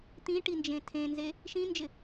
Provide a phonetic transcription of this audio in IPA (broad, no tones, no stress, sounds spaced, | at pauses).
t̪ ĩ ʈ i n d͡ʒ ẽ tʰ ẽ n z e | ʃ ĩ n d͡ʒ ɪ